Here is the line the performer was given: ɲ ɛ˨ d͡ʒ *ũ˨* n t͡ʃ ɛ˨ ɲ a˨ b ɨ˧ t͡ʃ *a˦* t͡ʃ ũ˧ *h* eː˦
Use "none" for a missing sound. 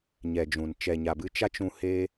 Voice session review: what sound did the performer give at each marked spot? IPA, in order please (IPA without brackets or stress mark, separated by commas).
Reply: ũ˨, a˦, h